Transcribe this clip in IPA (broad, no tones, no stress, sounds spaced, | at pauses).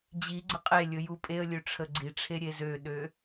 d͡ʑ i ɡ͡ǀ ə qʼ e lʲ ɵ j u pʼ e ə̯ lʲ ø ʈ͡ʂʰ ə ɡ͡ǀ i ʈ͡ʂʰ e ɾʲ e z ø ɗ ø